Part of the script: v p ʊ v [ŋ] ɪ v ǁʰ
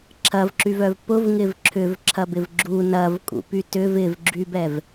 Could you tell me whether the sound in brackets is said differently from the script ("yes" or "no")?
no